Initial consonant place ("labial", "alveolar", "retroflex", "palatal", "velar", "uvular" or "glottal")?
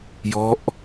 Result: palatal